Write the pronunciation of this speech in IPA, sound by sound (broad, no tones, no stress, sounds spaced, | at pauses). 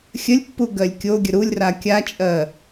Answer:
xʲ ə lʲ pː u ɡ ɜ lʲ kʲ o ɡʲ ə ɾ u lʲ r a kʲ a t͡ʃʼ ɜ